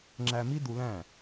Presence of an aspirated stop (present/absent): absent